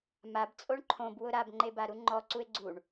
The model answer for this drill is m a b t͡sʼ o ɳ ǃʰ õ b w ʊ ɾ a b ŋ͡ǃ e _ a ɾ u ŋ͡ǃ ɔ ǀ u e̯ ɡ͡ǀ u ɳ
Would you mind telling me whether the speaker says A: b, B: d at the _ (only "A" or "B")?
A